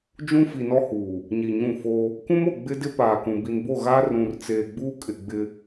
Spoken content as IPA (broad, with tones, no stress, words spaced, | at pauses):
d͡ʒũ˦fi˨nɔ˦huː˨ | ɲi˨ɲũ˦˨fo˦ | kũ˦mo˨ ɡ͡bɪ˦dɪ˦paː˨kũ˨ bi˨nbo˦˨ɣaː˦ rũ˨rt͡seː˨ ɡ͡buː˦kʼɪ˨ɡ͡bɪ˦